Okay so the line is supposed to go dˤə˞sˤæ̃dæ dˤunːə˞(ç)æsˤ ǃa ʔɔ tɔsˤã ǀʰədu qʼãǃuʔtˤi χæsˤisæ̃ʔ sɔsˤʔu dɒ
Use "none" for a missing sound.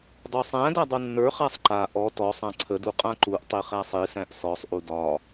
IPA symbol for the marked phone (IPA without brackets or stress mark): χ